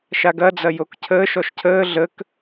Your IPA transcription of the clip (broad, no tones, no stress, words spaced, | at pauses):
ʃaɡɐ d͡zɐjokcʰəːʃ ɔʃcʰəː ɮək